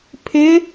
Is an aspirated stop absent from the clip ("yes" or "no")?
no